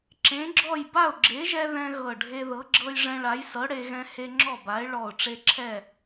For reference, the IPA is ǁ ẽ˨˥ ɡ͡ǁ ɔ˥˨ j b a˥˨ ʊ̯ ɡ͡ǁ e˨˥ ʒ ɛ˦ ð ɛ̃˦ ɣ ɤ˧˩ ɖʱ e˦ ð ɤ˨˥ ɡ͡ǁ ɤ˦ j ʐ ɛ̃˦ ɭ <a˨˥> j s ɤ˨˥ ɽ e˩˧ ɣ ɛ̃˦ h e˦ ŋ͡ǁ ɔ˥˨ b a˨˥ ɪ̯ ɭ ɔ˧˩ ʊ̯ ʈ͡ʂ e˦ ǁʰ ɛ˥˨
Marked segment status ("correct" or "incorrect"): correct